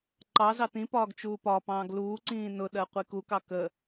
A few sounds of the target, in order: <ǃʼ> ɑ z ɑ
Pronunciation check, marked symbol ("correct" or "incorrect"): incorrect